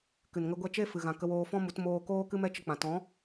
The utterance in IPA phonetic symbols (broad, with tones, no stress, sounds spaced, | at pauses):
k ɨ˨ n ŋ ə˧ ɡʷ ɛ˧ t͡ʃ e˦ f ɨ˨ ɣ ã˨ k ə˧ w oː˧ f ɔ̃˦ m u˨˦ t m oː˧ k oː˦ k ɨ˦ m ɛ˦ t͡ʃ ə˧ k͡p ã˨ t ɔ̃˨˦